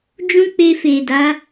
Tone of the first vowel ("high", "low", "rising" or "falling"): high